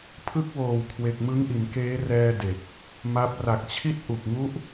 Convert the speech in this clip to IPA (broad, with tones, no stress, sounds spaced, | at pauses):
pʰ ɯ˦˥ k̚ w oː˨˩ w kʰ w e˨˩ k̚ m ɯ˦˥ ŋ ʔ i˩˦ n k eː˦˥ r ɛː˧ d e˨˩ k̚ | m a˦˥ p̚ r a˨˩ k̚ t͡ɕʰ i˦˥ t̚ ʔ u˨˩ k̚ ŋ u˦˥ ʔ